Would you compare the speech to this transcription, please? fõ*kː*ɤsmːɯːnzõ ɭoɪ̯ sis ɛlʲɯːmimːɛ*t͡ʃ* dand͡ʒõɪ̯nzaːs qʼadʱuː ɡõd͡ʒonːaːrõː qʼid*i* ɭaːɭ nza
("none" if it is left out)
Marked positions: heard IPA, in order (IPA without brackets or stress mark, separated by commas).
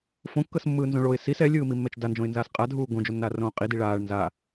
kː, t͡ʃ, i